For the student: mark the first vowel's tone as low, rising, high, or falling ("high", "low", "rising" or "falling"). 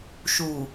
low